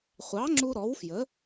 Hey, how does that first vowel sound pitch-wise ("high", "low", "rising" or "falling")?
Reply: rising